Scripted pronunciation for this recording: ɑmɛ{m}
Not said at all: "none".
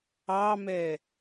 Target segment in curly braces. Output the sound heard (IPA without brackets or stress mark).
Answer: none